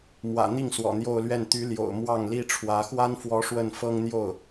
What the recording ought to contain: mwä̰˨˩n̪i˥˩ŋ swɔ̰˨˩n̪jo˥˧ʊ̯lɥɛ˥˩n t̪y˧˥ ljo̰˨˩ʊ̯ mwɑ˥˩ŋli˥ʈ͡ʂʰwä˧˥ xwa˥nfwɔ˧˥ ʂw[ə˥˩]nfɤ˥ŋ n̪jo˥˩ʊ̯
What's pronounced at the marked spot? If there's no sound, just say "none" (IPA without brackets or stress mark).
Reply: ə˥˩